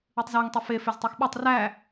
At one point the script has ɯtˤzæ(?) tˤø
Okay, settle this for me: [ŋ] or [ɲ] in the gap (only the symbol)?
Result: ŋ